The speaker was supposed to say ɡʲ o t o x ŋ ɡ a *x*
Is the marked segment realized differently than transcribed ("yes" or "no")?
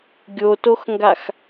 no